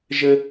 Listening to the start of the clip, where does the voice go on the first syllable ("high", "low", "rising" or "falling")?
high